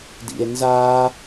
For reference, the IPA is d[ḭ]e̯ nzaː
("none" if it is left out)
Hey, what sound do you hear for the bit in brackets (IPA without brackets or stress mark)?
ḭ